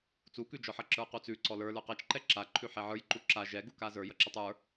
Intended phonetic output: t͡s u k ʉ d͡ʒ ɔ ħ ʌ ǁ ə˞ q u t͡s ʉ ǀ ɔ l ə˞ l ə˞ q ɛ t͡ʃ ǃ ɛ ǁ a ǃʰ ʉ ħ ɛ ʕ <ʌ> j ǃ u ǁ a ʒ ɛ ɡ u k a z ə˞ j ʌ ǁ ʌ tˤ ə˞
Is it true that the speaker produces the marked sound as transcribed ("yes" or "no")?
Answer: no